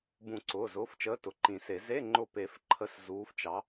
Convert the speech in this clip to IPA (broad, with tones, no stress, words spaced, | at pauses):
bũ˨˩˦ǀʊː˩˧˩zʊː˩˧˩ft͡ʃəː˨˥ tʊ˩˧˩ǃĩ˨˩˦se˨˩˦ ze˧˥˧ŋ͡ǃʊ˧˩pe˨˩˦f ǃʰə˧˥˧szuː˨˥ft͡ʃɑ˨˥